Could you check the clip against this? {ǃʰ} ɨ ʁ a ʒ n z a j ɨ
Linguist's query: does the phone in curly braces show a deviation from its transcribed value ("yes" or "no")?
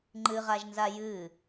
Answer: yes